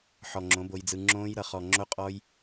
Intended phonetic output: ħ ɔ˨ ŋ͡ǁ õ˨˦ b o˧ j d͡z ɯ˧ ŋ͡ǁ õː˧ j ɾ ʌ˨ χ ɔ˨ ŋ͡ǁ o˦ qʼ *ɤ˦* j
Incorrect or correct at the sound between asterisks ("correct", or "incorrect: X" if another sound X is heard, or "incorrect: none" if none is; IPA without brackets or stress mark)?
incorrect: ɔ˦